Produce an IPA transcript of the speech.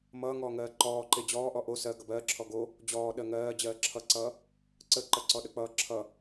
m ʌː ŋ ɔː ŋ ɜː ǃ ɔː ǃ e d͡ʑ ɔː ʔ ɔ ʔ o s ɜ ɡ ʌ b ɜː ǁʰ ɔ ɡ o | d͡ʑ ɔː ɗ ɜ ŋ ɜː d͡ʑ ɜː ǁʰ ʌ ǀ ʌː | ǀ ə ǃ ɜ ǀ ɔ ɗ ə k͡p ʌː ǁʰ ʌ

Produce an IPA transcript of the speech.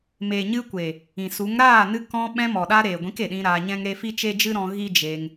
m eː˨ ɲ ɨ˧ kʷ e˨ | ĩ˨ s u˨˦ ŋ ɾ aː˦˨ n ɨ˧ k ɔ̃˧ ɓ ɛ̃˧ m ɔ˨ ɗ a˧ ɾ eː˨ ɡʷ ĩ˨˦ k e˨ ɗ ĩ˧ ɾ aː˧ ɲ ɛ̃˦ ŋ ɾ e˦ f i˦ t͡ʃ e˦ d͡ʒ ɨ˦ ɾ ɔ̃˧ ɣ i˦ d͡ʒ e˧ ŋ

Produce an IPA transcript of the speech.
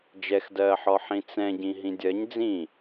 d͡ʒ ɛ x d ɜː ħ ɔ ħ ĩ t͡s ɛ̃ ɟ ĩ ɦ ĩ dʲ ɜ ɲ d͡z ĩ

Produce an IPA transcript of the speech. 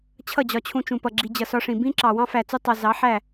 t͡ɕʰ ʌ˦˨ d͡ʑ ɒ˧ t͡ɕʰ ũ˧ t͡ʃ ũ˨ p ʌ˨ ɡ͡ǁ i˨ d͡ʑ ʌ˨ s ɒ˧ ʂ ĩ˨ b ĩ˦ ǁ ɑ˨ w ɑ̃˦ f æ˨ t͡s u˧ tˤ ɑ˨ z ɑ˨˦ ħ æ˦˨

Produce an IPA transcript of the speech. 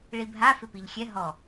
ɭ i bʱ a f ɪ p i ʎ xʲ ɛ ɦ ɔ

